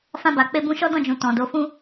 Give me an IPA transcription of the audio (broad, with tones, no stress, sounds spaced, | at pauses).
f ã˧ b a˨ k͡p e˧ b ũ˧ ʃ ɔ˦ d ɔ̃˦˨ d͡ʒ ũ˨ t ɔ̃˨ d o˨˦ f ũ˦